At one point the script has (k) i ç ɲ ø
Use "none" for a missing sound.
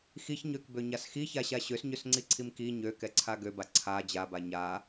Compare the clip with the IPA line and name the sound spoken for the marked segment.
x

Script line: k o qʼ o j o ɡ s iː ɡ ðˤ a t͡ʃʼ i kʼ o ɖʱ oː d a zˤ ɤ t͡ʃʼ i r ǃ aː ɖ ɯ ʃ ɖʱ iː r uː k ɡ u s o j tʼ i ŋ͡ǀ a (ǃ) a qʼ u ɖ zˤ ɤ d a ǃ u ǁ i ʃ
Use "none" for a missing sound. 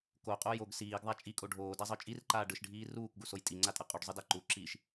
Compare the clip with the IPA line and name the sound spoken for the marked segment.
tʼ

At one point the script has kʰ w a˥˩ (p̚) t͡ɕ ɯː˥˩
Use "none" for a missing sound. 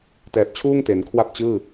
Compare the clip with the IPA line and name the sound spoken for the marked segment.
p̚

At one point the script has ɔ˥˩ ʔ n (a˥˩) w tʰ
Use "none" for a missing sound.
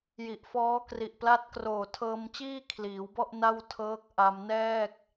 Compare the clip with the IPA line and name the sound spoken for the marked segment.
a˥˩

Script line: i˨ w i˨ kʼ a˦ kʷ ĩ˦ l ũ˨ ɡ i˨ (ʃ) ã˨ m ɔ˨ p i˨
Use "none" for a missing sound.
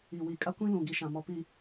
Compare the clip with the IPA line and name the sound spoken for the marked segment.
ʃ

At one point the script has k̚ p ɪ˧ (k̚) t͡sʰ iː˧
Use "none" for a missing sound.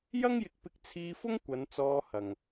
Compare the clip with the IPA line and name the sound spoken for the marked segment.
k̚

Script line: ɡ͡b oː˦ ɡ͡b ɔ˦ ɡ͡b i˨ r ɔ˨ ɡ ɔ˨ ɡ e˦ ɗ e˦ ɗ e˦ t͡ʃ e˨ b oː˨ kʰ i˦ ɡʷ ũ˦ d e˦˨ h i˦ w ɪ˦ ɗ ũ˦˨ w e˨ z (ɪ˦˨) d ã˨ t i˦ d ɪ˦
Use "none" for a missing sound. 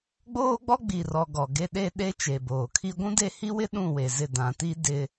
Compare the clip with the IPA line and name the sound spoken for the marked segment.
ɪ˦˨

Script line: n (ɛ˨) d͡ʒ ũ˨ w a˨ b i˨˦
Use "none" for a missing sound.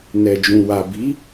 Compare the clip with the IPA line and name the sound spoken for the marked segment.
ɛ˨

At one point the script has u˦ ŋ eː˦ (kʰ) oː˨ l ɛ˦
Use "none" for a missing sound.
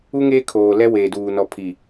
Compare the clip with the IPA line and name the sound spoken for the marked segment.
kʰ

